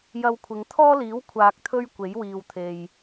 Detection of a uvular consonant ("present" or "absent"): absent